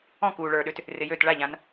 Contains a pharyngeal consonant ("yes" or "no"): no